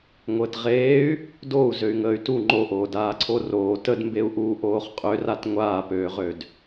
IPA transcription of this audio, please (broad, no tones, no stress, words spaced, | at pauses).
ŋʷəːtʁeːy̯ | dou̯ zøy̯ŋəːy̯tu ŋ͡ǃoʔoːdaː ǀʰoroː tədmbeu̯ʔuː ʔoːχqʼørat ŋʷaːpøːʁød